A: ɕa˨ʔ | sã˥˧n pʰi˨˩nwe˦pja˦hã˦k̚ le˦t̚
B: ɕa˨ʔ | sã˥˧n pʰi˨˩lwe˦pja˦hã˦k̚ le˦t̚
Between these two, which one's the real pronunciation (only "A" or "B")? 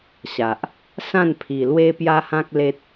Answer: B